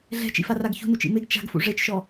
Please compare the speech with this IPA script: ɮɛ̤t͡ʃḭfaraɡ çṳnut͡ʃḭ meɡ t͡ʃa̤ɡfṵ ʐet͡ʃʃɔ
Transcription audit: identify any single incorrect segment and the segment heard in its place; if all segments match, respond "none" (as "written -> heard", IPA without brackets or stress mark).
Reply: none